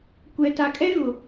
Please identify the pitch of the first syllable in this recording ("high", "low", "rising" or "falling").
low